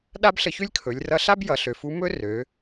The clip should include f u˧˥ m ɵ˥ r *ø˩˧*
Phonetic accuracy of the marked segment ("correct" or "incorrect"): correct